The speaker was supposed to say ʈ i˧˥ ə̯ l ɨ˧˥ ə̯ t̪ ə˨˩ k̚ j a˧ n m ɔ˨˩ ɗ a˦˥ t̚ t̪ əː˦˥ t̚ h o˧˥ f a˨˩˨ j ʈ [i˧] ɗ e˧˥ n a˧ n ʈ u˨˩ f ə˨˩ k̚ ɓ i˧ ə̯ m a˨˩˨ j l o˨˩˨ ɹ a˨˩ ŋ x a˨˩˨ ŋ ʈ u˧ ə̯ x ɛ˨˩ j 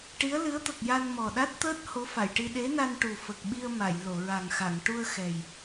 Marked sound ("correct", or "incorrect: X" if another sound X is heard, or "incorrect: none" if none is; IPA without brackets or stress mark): correct